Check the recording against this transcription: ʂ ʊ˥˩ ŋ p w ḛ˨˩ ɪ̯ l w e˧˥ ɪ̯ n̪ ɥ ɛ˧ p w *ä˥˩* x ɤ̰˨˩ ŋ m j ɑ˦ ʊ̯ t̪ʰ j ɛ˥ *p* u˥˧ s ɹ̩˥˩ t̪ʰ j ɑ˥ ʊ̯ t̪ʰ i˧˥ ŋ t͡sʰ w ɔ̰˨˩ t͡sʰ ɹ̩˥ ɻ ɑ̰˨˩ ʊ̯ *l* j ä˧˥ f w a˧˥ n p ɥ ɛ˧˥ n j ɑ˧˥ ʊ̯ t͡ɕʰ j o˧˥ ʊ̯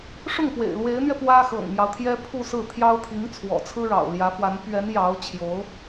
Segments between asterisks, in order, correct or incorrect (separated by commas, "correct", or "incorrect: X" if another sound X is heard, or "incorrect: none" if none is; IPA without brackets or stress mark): incorrect: ä˥, incorrect: pʰ, correct